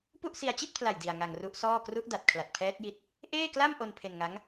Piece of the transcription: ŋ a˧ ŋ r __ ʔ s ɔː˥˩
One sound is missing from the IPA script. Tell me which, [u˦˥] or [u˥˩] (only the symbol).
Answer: u˦˥